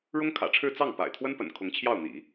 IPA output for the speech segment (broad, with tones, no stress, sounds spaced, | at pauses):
ɻ ʊ˥ ŋ kʰ ä̰˨˩ ʈ͡ʂʰ ɻ̩˥˧ t͡s ɑ˥˩ ŋ p a̰˨˩ ɪ̯ t̪ʰ w ə˥ n p ə̰˨˩ n kʰ ʊ˧˥ ŋ t͡ɕʰ j ɑ˥˩ ʊ̯ n̪ ḭ˨˩˦